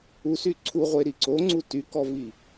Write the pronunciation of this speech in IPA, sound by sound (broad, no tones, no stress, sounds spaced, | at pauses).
u s y ǀʰ u ʁʷ e ɾ i ǀ o ŋ͡ǀ u t y k ɔ v i